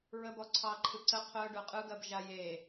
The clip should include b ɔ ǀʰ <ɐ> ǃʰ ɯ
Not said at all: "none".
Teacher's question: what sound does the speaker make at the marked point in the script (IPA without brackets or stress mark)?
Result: ɑ